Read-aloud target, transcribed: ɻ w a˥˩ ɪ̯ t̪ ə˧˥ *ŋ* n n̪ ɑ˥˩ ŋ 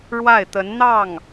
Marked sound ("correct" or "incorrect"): incorrect